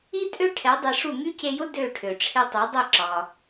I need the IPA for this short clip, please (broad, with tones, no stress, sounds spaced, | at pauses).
i˥ tʼ ø˥ ʈʰ ɛ˩˥ dˤ e˧ ʂ u˥˩ ŋ y˥ c e˧ j ʊ˥ d ø˥˩ ʈʰ ø˩ ʈ͡ʂʰ e˧ tˤ ɛ˩˥ dˤ ɛ˥˩ ǁ ɒ˩